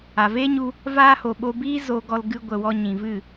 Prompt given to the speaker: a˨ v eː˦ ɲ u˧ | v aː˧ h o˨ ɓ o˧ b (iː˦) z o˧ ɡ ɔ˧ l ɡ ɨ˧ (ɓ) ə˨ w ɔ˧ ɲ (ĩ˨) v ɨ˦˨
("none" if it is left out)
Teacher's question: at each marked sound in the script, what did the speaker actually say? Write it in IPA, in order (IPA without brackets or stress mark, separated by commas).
iː˦, ɡʷ, ĩ˨